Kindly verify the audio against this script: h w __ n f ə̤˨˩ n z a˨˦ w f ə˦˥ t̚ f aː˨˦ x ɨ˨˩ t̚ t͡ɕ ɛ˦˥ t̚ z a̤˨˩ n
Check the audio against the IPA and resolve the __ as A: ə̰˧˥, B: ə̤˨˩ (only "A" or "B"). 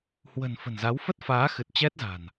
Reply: B